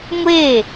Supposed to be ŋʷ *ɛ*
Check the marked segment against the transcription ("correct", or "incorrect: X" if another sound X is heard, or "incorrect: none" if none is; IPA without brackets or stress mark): incorrect: e